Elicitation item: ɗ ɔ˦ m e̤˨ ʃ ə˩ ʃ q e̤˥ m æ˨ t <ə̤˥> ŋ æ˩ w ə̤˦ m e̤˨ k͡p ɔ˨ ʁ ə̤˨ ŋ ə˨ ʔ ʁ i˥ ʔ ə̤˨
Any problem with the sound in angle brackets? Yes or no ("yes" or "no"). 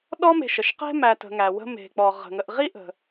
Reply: yes